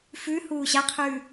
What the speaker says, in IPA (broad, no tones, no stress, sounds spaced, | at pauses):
f ʉ h uː ɕ a qʰ ʉː